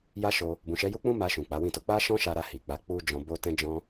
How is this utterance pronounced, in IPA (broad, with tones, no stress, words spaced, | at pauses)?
ja˧ ʃo˧ | bũ˨ʃɛ˨˦ju˦k͡pũ˦ ma˧ʃũ˨ k͡pa˨˦wĩ˦˨to˨˦ k͡pa˦ ʃɔ̃˦ʃa˧ɾa˧ hi˨ k͡pa˨˦ k͡pu˦ d͡ʒɔ̃˧bo˦ tɛ̃˦d͡ʒɔ̃˦